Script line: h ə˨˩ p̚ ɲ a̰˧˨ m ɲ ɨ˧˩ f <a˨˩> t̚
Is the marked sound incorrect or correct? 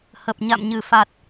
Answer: correct